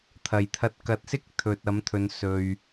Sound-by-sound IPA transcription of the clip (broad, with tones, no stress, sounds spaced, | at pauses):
t̪ʰ ɐ˨˩ j t̪ʰ ɐ˧ t̚ k ɐ˨˥ t̚ s ɪ˥ k̚ t̪ʰ ɵ˨ t̚ ɐ˨˥ m t̪ʰ ɵ˨ n s ɵ˨ ɥ